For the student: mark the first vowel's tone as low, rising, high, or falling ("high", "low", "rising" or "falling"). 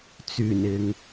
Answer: low